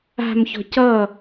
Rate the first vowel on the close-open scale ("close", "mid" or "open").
open